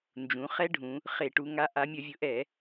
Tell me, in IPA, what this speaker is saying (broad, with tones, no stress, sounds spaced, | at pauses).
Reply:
n d͡ʒ ũ˩˧ χ ɛ˦˥ ɖʱ ũ˩˧ | χ e˧˩˧ ʈ u˩˧ ŋ a˨˥ ʔ a˩˧ mʲ ə˧˩˧ vʲ ʊ˩˧ ʔ ɛ˧˩˧